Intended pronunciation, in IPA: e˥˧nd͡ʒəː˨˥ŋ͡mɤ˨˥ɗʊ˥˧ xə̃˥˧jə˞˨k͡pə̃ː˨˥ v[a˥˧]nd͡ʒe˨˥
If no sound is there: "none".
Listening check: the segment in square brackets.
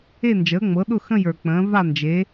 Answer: a˥˧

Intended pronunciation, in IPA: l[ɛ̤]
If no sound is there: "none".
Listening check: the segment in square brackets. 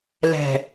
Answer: ɛ̤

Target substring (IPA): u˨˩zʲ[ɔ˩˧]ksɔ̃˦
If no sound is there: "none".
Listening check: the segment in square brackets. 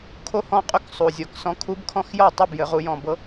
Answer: ɔ˨˩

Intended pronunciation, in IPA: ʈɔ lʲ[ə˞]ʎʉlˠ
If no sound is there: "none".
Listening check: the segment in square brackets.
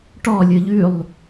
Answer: ə˞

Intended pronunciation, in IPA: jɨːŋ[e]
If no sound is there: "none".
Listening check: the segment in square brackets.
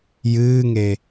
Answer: e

